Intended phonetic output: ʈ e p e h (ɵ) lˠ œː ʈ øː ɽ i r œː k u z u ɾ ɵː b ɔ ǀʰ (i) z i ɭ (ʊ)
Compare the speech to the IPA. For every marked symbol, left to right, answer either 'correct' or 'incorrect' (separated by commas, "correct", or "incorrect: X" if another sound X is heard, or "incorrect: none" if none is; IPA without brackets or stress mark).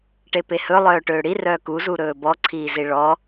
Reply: correct, incorrect: iː, incorrect: ɔ